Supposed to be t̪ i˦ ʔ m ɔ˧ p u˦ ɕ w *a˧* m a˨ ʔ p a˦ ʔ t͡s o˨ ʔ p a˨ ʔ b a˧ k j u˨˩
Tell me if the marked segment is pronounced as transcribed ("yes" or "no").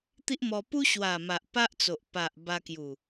no